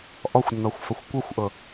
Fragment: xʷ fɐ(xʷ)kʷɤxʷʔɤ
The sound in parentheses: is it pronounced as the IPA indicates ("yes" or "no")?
yes